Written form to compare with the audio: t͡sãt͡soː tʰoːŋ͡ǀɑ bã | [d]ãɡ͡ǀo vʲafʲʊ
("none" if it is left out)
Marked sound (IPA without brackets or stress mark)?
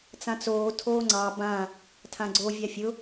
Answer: tʰ